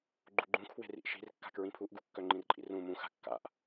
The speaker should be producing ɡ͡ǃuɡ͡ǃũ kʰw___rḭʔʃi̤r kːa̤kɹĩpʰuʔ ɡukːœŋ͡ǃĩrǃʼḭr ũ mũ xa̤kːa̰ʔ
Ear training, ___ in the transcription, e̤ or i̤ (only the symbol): e̤